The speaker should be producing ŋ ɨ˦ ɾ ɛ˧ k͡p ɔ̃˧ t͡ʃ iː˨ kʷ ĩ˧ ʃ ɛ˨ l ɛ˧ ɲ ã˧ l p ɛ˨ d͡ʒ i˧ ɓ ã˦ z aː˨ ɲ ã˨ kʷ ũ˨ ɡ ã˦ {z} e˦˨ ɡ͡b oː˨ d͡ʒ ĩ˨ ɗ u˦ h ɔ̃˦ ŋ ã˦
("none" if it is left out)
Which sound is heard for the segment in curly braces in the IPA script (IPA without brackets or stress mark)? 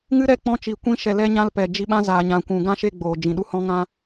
ʃ